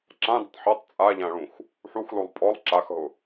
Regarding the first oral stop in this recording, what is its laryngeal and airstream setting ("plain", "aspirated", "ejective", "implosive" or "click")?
click